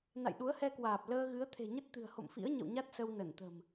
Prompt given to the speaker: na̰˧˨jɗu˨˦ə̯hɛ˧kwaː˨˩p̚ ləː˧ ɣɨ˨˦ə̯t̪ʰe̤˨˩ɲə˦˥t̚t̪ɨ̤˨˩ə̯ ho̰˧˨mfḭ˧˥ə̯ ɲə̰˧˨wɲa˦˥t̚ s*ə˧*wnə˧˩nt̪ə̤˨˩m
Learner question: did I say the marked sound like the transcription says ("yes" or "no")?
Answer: yes